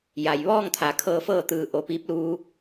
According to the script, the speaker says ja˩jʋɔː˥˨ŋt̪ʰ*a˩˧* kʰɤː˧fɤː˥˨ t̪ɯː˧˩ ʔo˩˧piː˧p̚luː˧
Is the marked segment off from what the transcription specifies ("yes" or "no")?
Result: yes